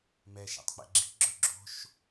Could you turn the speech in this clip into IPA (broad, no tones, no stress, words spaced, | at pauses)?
mɛ ʃa̰tˤk͡pɛ̰ɡ͡ǁi̤ ɡ͡ǁɵɡ͡ǁo̤ʃ